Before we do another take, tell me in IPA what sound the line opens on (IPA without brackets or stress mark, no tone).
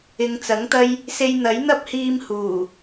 ɪ